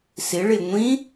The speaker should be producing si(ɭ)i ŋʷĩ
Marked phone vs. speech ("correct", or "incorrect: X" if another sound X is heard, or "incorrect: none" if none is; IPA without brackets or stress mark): correct